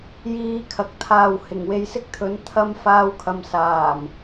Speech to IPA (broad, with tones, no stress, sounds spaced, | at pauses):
j iː˧ kʰ ɐ˨ k̚ t̪ʰ aː˨ w h ɪ˨˩ ŋ w e˨˧ j s ɪ˥ k̚ t̪ʰ ɵ˨˥ n t̪ʰ ɐ˥ m f aː˧ w kʰ ɐ˨ m s aː˨˩ m